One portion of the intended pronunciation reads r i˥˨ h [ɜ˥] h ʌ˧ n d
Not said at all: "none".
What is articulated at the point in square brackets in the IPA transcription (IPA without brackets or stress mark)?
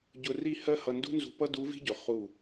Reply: ɜ˥